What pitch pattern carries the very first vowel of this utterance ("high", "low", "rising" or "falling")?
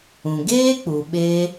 low